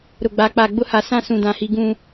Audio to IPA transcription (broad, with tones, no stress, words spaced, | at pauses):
ɾʊ˨ɡ͡ba˨˦k͡pa˨ ɡ͡bʊ˦ha˨ sã˦ sũ˨dã˨hi˨ ɡũ˨